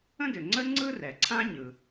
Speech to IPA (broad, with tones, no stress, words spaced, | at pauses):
ə̃˥dʏ˩ŋ͡ǀə˥ ŋ͡ǀɯ˥rɛ˩ǀʰã˥ ɲɯ˩